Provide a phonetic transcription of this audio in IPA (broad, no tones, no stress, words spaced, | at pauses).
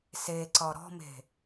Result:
seǀɒ ɾɔ̤me̤